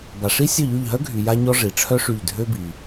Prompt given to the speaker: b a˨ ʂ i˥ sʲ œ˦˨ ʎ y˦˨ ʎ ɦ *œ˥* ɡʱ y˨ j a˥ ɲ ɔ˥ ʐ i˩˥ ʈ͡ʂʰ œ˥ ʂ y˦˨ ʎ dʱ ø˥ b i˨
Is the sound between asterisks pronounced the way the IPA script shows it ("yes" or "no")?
yes